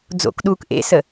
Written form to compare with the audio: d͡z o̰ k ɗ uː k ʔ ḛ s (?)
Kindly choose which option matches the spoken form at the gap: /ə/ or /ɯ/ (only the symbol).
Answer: ə